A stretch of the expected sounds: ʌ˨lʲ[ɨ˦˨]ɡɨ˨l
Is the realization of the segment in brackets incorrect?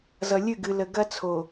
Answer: no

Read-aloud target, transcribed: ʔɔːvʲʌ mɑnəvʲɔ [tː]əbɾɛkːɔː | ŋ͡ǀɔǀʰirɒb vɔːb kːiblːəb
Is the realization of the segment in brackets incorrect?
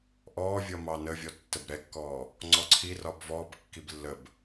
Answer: no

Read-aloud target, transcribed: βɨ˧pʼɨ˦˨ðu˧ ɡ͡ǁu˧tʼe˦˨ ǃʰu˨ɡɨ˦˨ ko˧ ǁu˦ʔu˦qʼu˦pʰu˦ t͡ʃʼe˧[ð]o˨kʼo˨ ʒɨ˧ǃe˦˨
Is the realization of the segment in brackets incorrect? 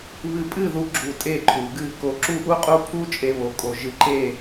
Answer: yes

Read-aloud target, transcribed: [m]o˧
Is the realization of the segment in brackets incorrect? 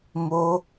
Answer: no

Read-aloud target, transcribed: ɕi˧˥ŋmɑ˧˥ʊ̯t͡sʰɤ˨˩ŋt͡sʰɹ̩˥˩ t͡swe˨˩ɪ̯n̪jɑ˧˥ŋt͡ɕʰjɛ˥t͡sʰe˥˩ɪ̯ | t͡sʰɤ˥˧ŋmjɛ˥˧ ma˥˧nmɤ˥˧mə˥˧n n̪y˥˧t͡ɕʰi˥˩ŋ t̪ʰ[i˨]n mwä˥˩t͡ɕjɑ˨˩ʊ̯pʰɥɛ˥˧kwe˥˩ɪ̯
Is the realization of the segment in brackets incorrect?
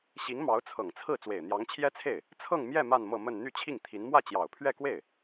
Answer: yes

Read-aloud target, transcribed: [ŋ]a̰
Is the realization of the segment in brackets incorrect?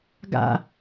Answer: yes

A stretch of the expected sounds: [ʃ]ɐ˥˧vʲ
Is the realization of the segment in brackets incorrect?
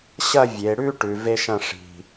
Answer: yes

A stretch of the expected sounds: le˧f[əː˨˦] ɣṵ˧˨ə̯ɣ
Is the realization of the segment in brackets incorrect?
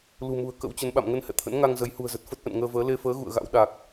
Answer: no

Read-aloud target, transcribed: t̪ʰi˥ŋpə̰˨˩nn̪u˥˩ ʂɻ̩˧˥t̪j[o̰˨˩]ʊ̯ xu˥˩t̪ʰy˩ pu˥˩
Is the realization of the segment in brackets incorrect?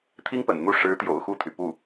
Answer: no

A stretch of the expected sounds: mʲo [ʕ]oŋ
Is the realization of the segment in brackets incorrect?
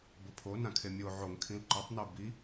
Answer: no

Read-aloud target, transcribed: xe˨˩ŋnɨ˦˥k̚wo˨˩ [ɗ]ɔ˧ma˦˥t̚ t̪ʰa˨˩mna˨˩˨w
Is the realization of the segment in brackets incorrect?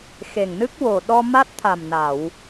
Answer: no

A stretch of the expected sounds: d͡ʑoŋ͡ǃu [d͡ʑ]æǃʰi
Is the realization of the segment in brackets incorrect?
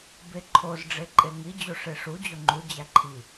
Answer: no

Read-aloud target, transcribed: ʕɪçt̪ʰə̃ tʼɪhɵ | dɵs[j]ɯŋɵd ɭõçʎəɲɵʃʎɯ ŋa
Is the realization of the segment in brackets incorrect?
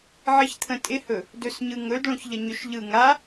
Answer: yes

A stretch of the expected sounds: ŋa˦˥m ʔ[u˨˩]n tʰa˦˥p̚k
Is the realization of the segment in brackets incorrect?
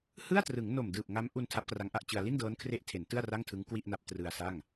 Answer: yes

